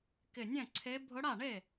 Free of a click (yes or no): no